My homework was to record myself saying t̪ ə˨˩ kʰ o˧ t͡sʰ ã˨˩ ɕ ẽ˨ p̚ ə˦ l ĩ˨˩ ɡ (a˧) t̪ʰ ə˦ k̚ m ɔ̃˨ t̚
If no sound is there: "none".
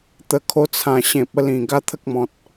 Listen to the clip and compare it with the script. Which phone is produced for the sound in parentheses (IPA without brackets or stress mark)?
a˦